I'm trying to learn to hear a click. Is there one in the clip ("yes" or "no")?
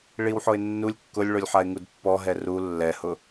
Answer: no